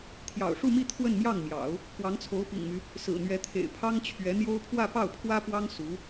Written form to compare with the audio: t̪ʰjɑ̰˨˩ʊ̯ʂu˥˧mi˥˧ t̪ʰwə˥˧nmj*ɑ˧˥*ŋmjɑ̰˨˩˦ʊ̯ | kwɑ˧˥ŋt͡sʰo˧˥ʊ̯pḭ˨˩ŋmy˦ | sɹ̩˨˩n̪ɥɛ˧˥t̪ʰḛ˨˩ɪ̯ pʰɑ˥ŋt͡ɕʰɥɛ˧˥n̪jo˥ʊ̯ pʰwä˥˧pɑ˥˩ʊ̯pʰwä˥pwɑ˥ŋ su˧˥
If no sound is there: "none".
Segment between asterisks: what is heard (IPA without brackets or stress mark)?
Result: ɑ˥˩